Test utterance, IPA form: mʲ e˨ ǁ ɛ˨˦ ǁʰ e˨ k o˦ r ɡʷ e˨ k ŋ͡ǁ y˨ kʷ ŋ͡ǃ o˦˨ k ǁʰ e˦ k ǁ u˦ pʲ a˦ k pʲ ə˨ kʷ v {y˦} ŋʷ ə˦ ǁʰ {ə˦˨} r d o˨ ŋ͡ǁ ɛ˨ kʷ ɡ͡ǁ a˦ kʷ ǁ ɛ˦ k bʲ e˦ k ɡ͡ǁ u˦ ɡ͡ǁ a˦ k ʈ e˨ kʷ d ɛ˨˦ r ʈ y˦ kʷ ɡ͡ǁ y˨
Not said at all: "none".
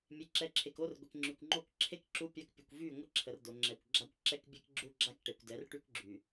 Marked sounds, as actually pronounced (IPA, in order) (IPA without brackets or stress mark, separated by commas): y˦˨, ə˨